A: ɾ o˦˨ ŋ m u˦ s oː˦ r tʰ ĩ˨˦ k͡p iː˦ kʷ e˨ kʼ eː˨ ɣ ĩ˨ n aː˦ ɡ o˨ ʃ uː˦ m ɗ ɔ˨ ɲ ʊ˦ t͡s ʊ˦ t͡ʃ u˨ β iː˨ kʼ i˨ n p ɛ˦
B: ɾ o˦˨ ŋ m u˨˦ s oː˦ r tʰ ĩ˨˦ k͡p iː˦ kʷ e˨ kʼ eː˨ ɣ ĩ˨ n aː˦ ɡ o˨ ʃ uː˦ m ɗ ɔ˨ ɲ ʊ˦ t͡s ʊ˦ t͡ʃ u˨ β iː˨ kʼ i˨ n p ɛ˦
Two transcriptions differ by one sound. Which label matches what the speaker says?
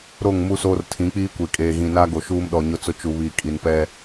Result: A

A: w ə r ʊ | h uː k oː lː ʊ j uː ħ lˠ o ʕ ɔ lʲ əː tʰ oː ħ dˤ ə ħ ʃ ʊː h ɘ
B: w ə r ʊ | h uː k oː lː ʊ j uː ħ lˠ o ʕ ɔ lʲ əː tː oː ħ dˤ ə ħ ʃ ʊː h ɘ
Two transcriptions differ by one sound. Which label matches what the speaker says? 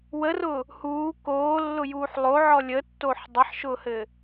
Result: B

